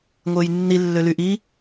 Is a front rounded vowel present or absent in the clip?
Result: present